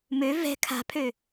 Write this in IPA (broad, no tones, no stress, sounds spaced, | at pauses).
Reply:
m ø v ɛ̤ kʰ a̤ pʰ ø